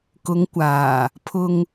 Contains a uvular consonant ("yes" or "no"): no